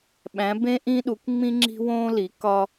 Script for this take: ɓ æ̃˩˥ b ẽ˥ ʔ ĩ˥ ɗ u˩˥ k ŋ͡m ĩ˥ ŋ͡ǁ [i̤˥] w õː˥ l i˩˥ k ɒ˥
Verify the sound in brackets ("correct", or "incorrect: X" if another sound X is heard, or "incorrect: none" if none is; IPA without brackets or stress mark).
correct